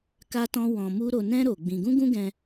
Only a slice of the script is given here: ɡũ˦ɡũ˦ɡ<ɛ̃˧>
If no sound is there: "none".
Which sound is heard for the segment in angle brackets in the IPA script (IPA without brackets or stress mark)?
ɛ̃˧